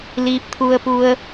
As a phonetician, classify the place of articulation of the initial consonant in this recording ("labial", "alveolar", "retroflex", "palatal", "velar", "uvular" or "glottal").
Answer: alveolar